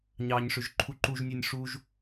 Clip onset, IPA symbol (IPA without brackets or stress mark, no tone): ɲ